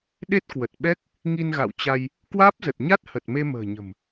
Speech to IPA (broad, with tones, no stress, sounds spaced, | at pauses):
ɗ e˦˥ t̚ k w ə˨˩ t̚ ɓ ɛ˦˥ k̚ | ŋ i˧ n ɣ a̰˧˨ w t͡ɕ a˧ j | k w aː˦˥ p̚ z ə˨˩ t̚ ɲ a˦˥ t̚ h ə˨˩ t̚ m e˧ m ə̤ː˨˩ ɲ ə̤˨˩ m